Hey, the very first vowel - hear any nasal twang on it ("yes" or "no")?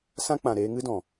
yes